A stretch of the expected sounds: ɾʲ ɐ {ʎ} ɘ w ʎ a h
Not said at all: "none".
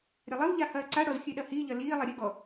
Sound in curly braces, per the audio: lˠ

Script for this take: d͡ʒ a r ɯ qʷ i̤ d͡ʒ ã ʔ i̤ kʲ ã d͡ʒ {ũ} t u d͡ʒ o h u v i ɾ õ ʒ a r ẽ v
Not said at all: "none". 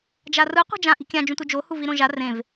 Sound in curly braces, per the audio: ũ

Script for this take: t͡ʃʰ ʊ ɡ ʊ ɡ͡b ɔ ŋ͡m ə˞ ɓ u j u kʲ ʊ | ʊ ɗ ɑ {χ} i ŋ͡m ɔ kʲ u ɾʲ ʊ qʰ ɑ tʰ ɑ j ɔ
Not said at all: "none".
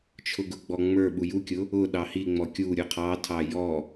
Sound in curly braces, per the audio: h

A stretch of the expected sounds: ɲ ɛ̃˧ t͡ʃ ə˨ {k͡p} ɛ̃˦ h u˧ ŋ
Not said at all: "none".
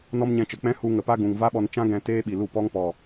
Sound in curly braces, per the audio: k͡p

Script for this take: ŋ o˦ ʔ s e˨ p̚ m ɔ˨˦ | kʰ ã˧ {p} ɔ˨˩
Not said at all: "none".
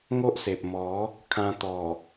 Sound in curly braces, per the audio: t̪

